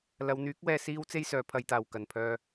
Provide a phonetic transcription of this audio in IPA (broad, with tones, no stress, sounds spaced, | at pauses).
l ɐ˨˧ w n̪ yː˨˥ k̚ w ɛː˧ s iː˥ w t͡s e˥ j s œː˨˧ pʰ ɐ˧ j t̪ aː˨ w k ɐ˨ n pʰ œː˧